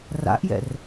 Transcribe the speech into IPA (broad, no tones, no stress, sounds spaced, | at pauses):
r a̰ ʔ j ɛ̰ r